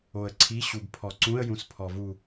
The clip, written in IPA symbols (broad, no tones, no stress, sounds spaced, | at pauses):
o ə̯ ǀʰ i ɕ u b pʰ ɔ ǀ ũ ə̯ j ũ s pʰ ɔ v u